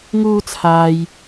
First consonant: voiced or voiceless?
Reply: voiced